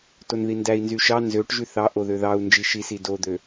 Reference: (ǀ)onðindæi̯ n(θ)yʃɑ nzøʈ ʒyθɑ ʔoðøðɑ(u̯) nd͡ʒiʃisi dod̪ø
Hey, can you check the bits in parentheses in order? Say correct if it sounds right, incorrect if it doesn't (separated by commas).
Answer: incorrect, incorrect, correct